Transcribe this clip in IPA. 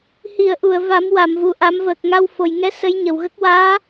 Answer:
h i˨˩˨ ə̯ ʔ u˨˩˨ ə̯ v a˨˩˦ m w a˨˩˨ m v u˨˩ ʔ a˨˩˦ m v əː˨˩ k̚ ŋ a˧ w f o˨˩ j ŋ ɛ˧˥ s ə˧˥ j ɲ ə˨˩ w ɣ ə˦˥ k̚ w aː˧˥

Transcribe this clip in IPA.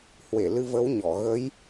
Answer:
h w e˧˩ l ɨ˧ v ə˨˦ w ɲ ɔ˧˩ ɣ ə˨˦ j

